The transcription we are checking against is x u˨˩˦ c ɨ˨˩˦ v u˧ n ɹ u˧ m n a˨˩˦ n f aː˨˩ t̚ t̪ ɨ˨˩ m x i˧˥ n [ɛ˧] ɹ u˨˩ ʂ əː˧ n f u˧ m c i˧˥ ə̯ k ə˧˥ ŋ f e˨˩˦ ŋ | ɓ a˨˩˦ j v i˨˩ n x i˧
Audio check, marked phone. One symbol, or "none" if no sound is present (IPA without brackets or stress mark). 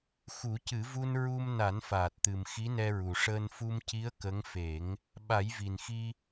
ɛ˧